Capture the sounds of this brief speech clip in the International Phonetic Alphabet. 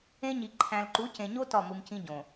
ẽ˦ ɲ i˨ ǃʰ æ̃˨ l ǃ u˨˦ c ẽ˨ ɲ o˦ t ɒ˦˨ m u˨ m c ĩ˦ ɟ õ˨

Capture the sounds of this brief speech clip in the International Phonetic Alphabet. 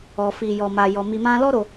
ɔ˧ f i˧ j ɔ˧ m a˧ j ɔ˧ m i˧ m ã˦ l ɔ˦ ɾ o˧

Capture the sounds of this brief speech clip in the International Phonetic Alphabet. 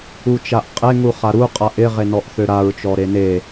u t͡ʃ a ʔ qʼ e ŋ u χ a ɾ u qʼ a ʔ ɪ ʁ e n ɔ ʔ θ ø ɾ a ɹ t͡ʃ ɔ ɾ e n e

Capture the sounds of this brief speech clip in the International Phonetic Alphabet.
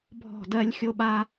bʱ ɔ̤˦˨ d ɜ˦ lʲ xʲ o˦ ɓ a˦

